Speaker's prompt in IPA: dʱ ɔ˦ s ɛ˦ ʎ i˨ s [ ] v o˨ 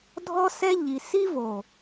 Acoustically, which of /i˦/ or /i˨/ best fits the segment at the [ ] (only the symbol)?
i˦